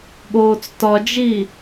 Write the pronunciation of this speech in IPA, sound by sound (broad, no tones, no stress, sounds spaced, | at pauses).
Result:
ɠ oː t͡s t ɒ d͡ʒ i